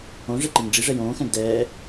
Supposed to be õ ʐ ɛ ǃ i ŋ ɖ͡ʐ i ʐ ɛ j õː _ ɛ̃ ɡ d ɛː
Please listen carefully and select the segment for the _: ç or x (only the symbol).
x